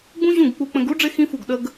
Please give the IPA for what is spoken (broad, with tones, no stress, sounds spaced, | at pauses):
ɡ͡b ũ˦ ʑ ũ˦˨ ɡ k͡p u˧ k͡p ə̃˧ ɡ u˦ ɖ͡ʐ ɪ˦ x ĩ˦ f u˦˨ ɡ ɗ ə˦ ɡ